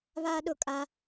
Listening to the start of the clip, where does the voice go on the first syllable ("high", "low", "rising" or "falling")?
high